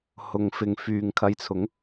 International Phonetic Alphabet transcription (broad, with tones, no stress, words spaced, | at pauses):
hʊ˨ŋfɪ˨ŋ fyː˨ŋkʰɐ˧jt͡sʰʊ˨˥ŋ